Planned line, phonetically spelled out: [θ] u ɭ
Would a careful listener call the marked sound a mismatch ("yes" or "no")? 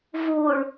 yes